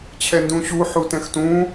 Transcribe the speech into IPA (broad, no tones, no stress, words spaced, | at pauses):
t͡ɕʰɛndũɕu ħutɛ̃xtũ